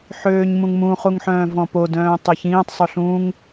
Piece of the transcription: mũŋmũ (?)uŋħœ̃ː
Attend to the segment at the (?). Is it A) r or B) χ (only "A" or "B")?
B